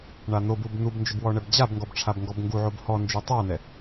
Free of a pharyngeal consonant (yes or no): no